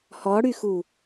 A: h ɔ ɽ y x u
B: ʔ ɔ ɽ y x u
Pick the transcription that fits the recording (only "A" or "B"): A